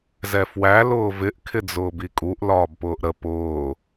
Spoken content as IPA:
z ɛ f w æ l ʊː v ɪ ʔ kʰ ɪ d͡z ʊː b i kʼ u ʔ l ɒː b p ʊː ʔ ɾ ə p ʊː

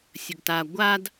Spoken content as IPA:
sʲ ə ɡ t a ɡʷ a d

